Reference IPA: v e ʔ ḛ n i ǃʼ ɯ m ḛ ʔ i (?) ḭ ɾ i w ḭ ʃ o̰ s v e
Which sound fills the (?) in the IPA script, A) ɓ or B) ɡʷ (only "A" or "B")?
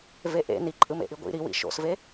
B